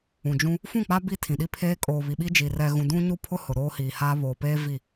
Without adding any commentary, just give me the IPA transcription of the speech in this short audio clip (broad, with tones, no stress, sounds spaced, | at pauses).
ũ˨ d͡ʒ ũ˦ | f ũ˦˨ k͡p a˦ b i˦ tʰ ĩ˨ ɗ i˦ pʰ eː˦ kʼ oː˨ β i˨ ɓ i˦ d͡ʒ i˨ r ɛ˨ ɣ ũ˨ d ũ˦ ɲ u˦ pʰ ʊ˦ h ʊ˨ ɾ oː˦ h iː˨ h aː˦ β oː˨ p eː˦ v i˦˨